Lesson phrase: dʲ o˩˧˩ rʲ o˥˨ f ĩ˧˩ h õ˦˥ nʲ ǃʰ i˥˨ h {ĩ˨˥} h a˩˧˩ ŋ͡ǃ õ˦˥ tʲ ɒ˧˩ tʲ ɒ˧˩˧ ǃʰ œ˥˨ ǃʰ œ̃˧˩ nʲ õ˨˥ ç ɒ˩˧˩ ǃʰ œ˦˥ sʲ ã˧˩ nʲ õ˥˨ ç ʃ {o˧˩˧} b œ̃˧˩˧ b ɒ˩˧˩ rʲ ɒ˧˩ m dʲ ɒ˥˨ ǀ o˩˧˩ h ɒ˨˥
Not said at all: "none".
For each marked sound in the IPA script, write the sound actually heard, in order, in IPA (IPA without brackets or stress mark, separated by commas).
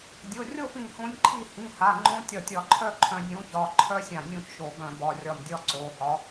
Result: ĩ˩˧˩, o˧˩˧